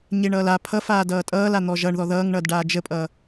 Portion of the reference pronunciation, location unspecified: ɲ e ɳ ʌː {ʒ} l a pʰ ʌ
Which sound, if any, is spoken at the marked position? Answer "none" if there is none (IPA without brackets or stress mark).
none